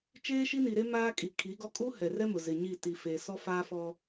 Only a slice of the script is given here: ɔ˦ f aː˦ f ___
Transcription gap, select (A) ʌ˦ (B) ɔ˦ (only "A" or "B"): B